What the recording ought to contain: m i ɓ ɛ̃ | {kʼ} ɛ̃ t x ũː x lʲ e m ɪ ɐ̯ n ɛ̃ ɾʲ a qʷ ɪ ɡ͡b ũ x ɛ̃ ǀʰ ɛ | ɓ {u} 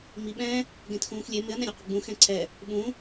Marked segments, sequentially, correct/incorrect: incorrect, incorrect

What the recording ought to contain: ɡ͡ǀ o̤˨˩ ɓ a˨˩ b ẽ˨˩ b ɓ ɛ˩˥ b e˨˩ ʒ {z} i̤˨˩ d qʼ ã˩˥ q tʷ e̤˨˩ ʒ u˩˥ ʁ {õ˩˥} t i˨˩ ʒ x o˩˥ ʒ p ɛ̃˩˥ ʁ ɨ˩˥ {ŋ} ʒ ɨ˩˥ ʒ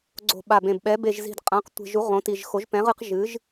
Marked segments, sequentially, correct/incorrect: correct, correct, incorrect

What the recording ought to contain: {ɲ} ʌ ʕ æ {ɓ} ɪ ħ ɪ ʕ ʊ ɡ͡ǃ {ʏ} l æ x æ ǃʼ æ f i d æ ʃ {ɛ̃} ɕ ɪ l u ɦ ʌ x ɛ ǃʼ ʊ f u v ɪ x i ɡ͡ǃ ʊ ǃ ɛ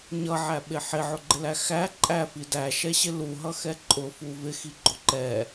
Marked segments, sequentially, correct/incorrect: correct, correct, incorrect, incorrect

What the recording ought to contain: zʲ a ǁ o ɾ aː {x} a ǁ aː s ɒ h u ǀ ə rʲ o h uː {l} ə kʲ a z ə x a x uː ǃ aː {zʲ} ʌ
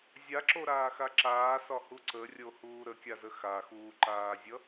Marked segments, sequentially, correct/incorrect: correct, incorrect, correct

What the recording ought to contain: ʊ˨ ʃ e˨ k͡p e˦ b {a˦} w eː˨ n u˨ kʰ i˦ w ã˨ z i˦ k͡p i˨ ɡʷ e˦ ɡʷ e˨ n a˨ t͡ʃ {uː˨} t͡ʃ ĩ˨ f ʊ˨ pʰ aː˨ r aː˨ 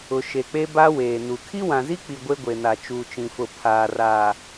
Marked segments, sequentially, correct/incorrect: correct, correct

